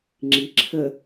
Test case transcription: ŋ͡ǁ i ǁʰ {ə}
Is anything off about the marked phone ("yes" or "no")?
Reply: no